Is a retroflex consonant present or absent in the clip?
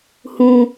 absent